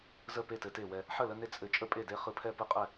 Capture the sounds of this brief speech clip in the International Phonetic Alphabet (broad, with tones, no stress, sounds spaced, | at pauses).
z ə˥˨ p e˥˨ t ɘ˦ t e˥˨ w ɛ˦ | ħ ə˥˨ l ə˦ n e˦ t͡sʼ ɘ˥˨ t͡ʃʼ ə˥˨ pʼ e˥˨ d e˦ χ ɯ˦ pʰ ɛ˥˨ p ɯ˥˨ qʼ ɛ˥˨